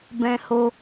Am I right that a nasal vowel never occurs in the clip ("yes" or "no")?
no